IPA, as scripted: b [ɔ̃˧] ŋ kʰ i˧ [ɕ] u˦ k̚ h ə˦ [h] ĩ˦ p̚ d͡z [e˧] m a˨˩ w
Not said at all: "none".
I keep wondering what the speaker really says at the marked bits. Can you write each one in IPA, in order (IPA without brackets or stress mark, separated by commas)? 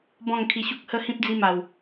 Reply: ɔ̃˥˧, ɕ, h, i˧